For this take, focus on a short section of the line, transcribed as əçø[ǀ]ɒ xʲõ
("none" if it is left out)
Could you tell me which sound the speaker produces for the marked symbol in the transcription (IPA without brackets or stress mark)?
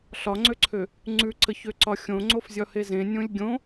ǀ